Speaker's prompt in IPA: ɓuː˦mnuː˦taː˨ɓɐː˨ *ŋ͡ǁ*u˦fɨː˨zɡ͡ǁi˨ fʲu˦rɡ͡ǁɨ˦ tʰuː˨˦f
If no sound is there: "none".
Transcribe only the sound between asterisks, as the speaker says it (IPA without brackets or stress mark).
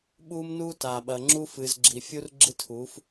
ŋ͡ǁ